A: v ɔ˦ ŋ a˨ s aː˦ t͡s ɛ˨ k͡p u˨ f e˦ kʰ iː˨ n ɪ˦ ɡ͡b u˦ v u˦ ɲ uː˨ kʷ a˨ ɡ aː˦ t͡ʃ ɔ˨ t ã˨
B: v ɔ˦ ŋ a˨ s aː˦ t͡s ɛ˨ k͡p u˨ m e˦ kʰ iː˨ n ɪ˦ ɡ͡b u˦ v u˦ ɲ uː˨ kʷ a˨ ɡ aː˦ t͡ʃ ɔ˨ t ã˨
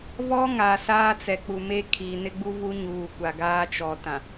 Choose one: B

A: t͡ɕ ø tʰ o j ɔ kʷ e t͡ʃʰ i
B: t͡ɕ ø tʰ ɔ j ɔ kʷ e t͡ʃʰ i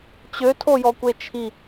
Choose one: A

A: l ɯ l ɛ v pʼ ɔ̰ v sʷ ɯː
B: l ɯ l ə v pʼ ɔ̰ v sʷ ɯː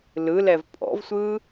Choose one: A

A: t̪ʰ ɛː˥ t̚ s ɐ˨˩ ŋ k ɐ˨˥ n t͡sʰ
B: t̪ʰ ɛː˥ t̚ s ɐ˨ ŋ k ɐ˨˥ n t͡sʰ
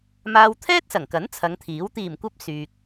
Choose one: A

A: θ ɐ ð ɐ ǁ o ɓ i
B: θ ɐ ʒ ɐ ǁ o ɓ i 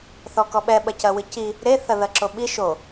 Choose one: A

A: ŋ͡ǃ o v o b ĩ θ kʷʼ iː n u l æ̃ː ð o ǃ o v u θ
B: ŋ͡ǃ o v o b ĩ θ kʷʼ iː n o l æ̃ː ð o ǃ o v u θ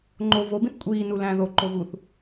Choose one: A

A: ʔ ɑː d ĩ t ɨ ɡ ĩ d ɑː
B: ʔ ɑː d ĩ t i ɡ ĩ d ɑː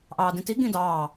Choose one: B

